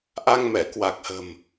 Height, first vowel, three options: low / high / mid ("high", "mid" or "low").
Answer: low